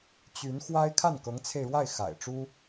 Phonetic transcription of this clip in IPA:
t͡ɕ y˧˥ n x w a˥ ɪ̯ kʰ a˥˩ n k ɤ˧˥ ŋ t͡sʰ e˧ ɪ̯ ɻ w a˥˩ ɪ̯ x a̰˨˩ ɪ̯ ʈ͡ʂ u˥

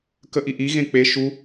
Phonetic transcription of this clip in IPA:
k ə ʔ i ʔ i ɣ ẽ k͡p e ʃ u

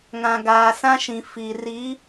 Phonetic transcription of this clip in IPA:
ŋ ã˨ ɡ aː˨ s ã˦ ʃ ĩ˨ f i˨ r i˨˦

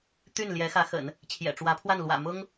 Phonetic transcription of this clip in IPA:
t̪ y˥˩ n l j ɛ˧˥ x ä˧˥ x ə̰˨˩˦ n | t͡ɕʰ j ɛ̰˨˩ ʈ͡ʂ w ä˧˥ pʰ w a˥˩ n l w ä̰˨˩ m ʊ˥ ŋ

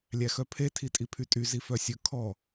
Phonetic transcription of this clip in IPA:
lʲ æ x œ pʰ e tʰ i tʼ i pʰ y tʼ y z i f œ sʲ ɵ kʰ ɔ

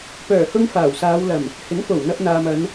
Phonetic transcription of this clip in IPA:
p œː˨˩ h ʊ˧ ŋ f aː˨˩ w s aː˨˧ w l ɐ˨˩ m | h ɪ˨˥ ŋ f o˨˩ w n̪ ɐ˧ p̚ n̪ aː˨ m ɐ˨˧ n

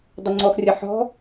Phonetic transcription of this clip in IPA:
dˤ ə ŋ͡ǀ ɔ x rʲ ɐ ħ ɔ̤

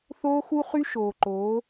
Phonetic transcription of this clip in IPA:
θ oː˦ x u˦ χ y˦ ʃ oː˨ ǃ oː˨˦

